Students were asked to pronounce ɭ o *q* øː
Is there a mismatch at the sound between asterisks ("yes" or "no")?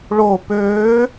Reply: yes